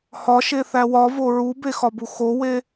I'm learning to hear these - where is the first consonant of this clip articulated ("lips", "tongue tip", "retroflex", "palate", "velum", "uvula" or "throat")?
throat